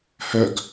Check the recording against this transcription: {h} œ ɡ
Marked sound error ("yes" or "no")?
no